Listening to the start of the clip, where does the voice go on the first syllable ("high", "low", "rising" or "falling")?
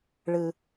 low